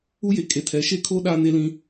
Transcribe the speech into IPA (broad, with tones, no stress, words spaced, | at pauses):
u˦je˨kʼe˨tʰɛ˨˦ ʃe˦kʰo˦ ɗaː˦ne˦lĩ˦